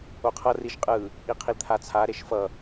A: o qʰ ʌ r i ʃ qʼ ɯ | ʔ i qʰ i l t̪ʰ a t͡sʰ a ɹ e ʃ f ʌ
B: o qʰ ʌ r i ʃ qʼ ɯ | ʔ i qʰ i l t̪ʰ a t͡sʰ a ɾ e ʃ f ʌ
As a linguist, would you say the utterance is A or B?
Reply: B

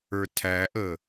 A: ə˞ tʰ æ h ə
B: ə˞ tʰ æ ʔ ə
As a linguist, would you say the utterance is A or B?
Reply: B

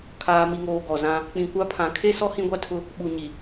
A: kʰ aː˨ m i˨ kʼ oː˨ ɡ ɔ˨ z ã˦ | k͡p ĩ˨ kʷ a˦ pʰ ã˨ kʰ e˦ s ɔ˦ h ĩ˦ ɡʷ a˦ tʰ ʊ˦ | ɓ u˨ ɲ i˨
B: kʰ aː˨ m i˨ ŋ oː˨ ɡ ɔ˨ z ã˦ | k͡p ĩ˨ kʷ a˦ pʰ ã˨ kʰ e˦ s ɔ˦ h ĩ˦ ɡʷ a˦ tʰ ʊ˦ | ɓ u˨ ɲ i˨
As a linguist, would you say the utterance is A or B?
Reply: B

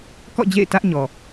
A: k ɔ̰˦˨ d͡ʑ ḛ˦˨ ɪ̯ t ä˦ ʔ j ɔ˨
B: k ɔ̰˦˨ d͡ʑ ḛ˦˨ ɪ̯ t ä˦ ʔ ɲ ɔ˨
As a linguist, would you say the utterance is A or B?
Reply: B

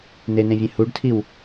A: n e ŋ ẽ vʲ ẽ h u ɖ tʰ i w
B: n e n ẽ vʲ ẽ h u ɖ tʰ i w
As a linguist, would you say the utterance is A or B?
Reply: B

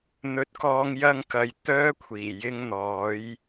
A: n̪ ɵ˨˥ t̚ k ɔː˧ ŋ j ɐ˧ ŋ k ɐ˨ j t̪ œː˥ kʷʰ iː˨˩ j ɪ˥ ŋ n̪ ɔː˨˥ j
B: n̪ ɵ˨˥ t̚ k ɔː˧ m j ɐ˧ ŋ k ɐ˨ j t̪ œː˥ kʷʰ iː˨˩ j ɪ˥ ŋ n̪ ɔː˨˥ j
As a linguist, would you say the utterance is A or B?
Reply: A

